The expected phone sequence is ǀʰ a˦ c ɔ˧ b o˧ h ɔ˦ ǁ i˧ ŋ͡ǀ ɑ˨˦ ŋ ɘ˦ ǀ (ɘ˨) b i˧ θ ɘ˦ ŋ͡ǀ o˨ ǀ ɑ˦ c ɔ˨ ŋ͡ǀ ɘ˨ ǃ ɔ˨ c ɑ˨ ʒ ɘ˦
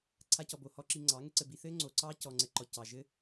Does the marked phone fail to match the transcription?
yes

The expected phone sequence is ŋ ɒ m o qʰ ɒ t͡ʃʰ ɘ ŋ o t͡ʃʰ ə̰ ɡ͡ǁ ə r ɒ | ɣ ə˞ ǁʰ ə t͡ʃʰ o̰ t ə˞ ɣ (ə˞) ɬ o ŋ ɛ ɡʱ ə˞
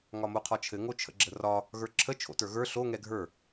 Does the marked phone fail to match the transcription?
no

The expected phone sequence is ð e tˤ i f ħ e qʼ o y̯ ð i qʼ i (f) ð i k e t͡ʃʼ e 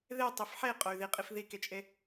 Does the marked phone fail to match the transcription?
no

